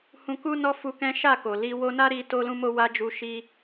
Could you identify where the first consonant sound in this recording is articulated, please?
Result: glottal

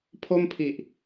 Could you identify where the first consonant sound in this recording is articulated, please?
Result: labial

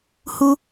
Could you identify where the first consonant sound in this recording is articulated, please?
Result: glottal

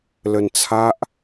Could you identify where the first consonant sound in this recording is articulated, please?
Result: alveolar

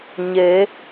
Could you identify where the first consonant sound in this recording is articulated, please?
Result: palatal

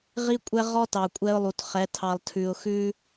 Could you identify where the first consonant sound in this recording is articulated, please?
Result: uvular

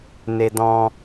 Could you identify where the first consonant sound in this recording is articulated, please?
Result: alveolar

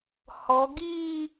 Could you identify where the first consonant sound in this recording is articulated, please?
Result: glottal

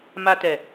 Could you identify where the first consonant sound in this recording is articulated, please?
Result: labial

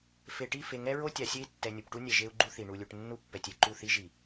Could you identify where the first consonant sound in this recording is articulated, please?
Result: labial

